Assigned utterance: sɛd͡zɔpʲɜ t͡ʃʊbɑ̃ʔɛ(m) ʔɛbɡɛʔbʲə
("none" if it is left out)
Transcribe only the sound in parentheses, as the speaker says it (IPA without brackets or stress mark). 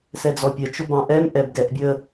m